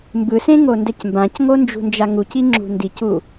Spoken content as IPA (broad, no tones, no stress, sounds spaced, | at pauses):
m b ɯ s ẽ ŋ o n d ɛ c m b ã c ŋ o n d͡ʒ ṳ n d͡ʒ a ŋ u c i ŋ͡ǁ ṳ n d i c u